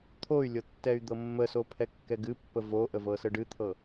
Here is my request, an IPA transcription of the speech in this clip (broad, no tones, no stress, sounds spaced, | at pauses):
t̪ʰ o y̯ lʲ ɤ tː ɛ y̯ d̪ ɤ mː ə s o pʰ ɛ kː ɛ ɡ ɨ pː ə v o ʔ ə v ɤ s ə ɖ ɨ t̪ʰ ɤ